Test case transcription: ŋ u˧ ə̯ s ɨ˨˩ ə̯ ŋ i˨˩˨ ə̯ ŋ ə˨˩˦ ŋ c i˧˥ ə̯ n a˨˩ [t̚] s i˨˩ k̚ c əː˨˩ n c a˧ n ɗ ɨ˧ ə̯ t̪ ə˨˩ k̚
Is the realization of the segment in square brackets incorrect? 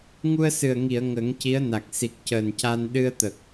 yes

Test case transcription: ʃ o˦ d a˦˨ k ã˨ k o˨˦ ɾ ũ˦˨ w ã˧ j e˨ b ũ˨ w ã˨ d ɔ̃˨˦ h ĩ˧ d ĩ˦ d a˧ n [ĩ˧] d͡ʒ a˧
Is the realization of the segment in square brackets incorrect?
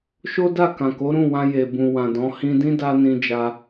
no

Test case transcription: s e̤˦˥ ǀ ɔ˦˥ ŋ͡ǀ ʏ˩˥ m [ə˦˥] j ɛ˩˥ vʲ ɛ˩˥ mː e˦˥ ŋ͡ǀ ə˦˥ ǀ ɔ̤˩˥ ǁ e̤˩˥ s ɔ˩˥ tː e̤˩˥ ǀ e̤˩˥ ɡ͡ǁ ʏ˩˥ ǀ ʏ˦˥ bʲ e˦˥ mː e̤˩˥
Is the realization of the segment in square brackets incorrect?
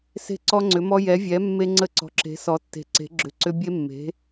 yes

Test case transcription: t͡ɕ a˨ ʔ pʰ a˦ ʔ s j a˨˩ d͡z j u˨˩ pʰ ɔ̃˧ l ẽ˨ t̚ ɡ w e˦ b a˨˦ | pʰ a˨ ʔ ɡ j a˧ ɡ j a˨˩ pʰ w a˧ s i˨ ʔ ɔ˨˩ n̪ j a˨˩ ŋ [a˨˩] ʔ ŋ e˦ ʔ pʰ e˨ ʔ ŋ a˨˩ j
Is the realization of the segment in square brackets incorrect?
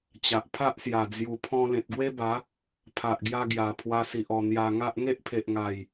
yes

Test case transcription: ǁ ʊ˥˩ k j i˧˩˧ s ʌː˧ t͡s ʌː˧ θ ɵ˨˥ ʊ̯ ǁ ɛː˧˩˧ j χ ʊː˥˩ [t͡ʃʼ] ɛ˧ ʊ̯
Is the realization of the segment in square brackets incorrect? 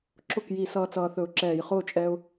no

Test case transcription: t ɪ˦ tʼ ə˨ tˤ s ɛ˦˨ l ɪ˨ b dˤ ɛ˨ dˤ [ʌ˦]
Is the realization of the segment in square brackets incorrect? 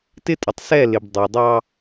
yes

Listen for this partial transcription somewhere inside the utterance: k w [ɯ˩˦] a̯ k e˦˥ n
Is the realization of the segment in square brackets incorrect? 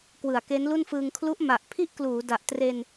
no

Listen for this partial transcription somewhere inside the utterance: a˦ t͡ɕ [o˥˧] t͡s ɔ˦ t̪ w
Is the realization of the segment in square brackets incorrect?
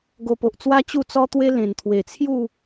yes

